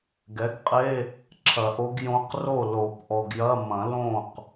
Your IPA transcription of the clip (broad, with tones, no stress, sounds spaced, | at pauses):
ɡ ɛ˩˥ ɡ qʼ e˧˥˧ | ǁʰ ɐ˨˩˦ ʔ o˧˥ ɡ j õ˧˥ q r o˥˩ l o˨˩˦ p ʔ ɔ˨ ɡ j ɐ˧˥˧ m ɐ̃˨˩˦ l õ˥˩ q